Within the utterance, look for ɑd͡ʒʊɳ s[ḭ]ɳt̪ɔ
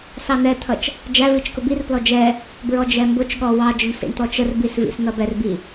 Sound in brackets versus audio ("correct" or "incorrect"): correct